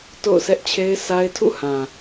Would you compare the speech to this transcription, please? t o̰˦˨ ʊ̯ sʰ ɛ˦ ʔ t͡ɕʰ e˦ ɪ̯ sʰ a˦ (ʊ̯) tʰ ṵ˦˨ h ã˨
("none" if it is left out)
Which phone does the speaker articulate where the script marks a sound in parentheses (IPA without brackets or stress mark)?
ɪ̯